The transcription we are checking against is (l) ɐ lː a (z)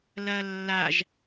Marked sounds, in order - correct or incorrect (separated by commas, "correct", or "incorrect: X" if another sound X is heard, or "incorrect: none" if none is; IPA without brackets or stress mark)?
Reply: correct, incorrect: ʒ